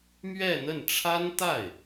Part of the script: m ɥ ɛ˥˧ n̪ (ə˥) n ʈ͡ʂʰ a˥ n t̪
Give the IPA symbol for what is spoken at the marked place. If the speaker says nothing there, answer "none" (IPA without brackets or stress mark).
ə˥˩